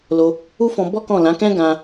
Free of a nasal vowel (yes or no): no